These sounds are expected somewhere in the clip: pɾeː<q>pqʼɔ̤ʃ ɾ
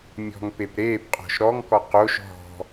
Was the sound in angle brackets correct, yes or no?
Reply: no